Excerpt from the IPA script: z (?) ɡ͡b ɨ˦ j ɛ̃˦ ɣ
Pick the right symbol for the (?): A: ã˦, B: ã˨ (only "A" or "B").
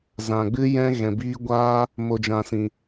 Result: B